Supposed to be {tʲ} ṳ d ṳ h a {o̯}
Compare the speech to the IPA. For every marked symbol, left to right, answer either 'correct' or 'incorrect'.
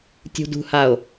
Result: correct, correct

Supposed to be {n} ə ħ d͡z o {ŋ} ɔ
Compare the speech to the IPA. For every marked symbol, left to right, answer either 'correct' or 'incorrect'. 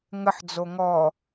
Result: incorrect, correct

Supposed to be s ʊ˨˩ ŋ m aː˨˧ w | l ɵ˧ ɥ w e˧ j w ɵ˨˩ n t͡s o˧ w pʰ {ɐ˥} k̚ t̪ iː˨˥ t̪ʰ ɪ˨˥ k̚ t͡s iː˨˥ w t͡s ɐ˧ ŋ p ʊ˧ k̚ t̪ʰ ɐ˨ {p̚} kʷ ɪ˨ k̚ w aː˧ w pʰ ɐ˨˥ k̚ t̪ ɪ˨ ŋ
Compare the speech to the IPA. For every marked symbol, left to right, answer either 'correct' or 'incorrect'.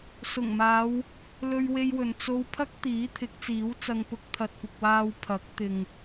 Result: correct, incorrect

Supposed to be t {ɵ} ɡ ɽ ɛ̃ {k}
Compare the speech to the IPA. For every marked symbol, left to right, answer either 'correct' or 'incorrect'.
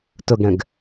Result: correct, incorrect

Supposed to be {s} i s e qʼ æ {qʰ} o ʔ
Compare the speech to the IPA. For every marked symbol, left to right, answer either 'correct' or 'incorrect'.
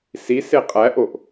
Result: correct, incorrect

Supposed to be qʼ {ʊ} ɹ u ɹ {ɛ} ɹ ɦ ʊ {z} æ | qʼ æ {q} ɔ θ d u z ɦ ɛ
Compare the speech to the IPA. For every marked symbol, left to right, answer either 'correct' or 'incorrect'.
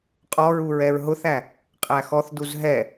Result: incorrect, correct, incorrect, incorrect

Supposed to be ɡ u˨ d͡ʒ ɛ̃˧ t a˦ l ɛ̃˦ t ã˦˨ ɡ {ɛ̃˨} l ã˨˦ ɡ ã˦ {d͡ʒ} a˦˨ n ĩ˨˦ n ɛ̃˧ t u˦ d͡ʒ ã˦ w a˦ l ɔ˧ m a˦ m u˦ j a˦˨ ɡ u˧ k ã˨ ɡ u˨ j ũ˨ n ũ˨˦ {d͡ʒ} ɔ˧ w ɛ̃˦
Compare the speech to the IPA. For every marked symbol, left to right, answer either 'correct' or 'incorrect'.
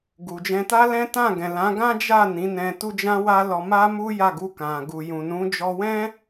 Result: correct, correct, correct

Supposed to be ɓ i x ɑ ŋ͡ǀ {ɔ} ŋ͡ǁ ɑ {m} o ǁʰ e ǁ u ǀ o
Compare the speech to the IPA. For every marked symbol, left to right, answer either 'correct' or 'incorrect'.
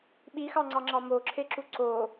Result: incorrect, correct

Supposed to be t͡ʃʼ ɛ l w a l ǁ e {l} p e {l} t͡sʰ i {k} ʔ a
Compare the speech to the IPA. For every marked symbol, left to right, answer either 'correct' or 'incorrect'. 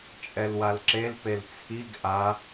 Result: correct, correct, incorrect

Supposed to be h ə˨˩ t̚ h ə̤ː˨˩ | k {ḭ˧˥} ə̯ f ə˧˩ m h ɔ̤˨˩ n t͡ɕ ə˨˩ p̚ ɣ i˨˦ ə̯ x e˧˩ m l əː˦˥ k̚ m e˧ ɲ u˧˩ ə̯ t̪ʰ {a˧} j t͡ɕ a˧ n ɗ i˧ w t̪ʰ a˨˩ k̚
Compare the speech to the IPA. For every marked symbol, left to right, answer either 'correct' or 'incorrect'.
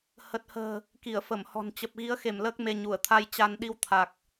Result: incorrect, correct

